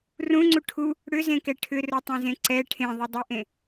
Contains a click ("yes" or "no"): yes